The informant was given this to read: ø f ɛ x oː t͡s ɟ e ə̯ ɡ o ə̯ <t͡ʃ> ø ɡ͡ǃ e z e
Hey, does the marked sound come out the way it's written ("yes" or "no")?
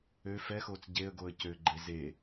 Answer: no